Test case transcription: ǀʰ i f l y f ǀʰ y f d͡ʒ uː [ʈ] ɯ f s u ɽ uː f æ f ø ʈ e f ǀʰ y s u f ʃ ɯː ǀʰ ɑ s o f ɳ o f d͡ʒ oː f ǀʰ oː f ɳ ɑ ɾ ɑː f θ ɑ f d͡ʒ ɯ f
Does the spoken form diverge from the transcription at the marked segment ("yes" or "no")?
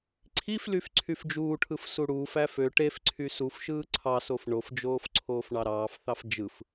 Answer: yes